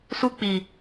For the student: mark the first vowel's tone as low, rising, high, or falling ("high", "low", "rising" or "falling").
high